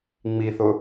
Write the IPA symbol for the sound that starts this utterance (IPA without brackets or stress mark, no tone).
ŋ͡m